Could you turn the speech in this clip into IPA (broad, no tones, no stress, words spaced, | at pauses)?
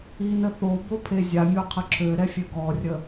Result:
inə θo bopʰezʲamʲo qʰəǁʰøɾɛ fʲøɡɔrʲə